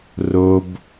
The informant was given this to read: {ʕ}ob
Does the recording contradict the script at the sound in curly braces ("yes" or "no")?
yes